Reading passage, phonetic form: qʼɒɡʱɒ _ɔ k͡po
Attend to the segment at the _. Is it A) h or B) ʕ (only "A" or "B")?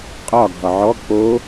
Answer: B